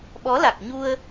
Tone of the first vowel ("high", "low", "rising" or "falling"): rising